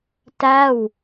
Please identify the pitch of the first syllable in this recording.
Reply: falling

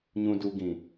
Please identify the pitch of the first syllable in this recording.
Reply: low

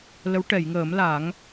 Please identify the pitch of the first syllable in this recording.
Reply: rising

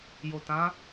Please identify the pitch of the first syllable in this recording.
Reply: low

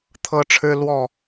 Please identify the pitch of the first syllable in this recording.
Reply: high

